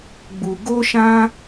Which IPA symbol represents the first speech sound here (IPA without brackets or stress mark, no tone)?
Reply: ɡ͡b